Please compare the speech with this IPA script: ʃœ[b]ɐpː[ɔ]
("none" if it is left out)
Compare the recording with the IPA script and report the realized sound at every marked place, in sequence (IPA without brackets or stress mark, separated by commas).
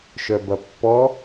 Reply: b, ɔ